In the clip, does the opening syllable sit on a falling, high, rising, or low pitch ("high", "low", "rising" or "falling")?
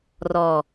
low